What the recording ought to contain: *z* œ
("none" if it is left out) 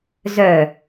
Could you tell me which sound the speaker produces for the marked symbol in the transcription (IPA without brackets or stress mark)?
z